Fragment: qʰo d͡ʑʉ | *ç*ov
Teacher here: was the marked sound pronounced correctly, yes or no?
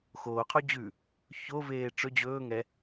yes